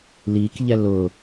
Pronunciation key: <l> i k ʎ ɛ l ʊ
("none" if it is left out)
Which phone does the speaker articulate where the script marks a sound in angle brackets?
l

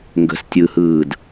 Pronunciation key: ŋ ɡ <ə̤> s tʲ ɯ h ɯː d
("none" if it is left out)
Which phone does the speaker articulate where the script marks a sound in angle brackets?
ə̤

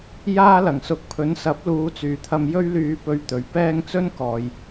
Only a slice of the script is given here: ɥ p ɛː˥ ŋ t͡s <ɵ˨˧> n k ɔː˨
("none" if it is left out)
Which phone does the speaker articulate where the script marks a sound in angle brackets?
ɵ˥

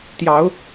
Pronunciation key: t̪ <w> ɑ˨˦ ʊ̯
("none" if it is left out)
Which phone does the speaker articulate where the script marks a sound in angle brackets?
j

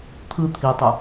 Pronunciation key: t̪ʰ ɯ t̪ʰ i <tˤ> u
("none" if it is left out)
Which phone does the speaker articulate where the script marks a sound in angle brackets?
tˤ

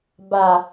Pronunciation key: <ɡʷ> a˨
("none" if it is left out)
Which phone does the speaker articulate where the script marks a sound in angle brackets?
b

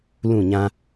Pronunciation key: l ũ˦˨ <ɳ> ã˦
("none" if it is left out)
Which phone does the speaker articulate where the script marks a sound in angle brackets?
ɲ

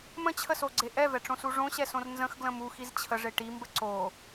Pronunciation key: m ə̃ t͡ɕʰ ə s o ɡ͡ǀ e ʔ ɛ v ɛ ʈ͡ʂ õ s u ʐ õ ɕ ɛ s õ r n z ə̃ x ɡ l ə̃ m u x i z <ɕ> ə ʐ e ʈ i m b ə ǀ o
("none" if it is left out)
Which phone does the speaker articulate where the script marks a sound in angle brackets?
t͡ɕʰ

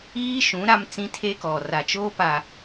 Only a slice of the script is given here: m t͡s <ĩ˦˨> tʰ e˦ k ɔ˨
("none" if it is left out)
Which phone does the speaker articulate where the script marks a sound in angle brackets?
ĩ˦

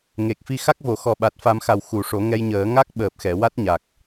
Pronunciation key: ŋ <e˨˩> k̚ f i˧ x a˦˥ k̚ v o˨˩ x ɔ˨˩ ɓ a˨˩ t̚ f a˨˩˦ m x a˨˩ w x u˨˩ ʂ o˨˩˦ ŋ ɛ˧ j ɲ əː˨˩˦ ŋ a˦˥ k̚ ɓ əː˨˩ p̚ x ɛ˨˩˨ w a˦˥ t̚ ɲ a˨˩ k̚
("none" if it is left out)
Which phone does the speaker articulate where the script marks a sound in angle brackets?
e˨˩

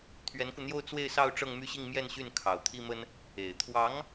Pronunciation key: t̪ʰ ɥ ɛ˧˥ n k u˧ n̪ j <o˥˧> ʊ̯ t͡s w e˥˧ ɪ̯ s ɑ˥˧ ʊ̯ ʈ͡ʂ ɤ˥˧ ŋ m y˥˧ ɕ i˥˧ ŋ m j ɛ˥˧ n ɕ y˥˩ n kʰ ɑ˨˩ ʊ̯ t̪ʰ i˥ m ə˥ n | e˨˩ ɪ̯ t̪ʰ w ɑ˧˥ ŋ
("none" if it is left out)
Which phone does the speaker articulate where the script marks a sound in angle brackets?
o˥˧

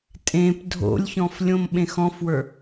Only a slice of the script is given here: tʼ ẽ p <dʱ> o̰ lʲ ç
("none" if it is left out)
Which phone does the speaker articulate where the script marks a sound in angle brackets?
dʱ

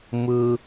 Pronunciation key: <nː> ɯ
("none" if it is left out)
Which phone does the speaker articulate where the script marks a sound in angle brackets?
m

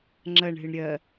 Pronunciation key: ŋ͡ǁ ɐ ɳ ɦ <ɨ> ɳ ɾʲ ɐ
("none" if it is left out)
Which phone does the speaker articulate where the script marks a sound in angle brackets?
ɨ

